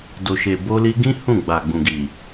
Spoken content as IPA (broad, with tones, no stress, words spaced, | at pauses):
do˨ʃe˨ bo˧li˧ɡĩ˦ hũ˦˨ɡ͡ba˨ɡ͡bũ˨ɡi˨